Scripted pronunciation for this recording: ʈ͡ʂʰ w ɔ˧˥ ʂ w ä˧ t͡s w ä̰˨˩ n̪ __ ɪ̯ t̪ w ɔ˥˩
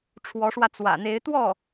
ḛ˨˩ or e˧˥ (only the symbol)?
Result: e˧˥